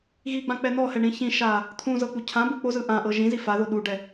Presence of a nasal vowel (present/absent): present